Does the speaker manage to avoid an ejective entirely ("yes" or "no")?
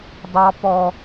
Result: yes